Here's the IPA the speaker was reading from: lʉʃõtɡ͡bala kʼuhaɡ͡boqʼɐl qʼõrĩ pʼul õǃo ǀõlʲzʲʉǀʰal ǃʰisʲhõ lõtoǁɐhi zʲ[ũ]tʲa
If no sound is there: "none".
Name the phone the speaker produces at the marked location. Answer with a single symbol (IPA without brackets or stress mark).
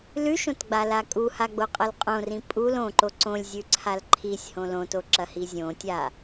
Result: õ